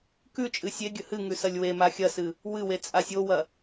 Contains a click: no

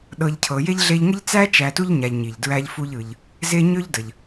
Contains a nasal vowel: no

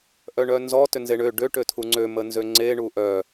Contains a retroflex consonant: yes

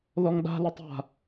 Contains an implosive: yes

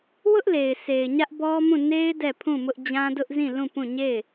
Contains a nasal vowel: yes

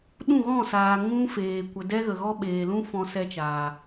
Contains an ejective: no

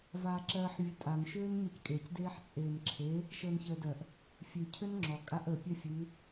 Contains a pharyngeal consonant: yes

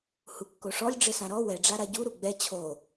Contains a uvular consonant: no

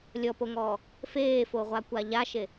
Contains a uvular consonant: yes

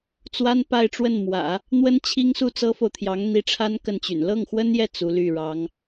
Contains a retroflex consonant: yes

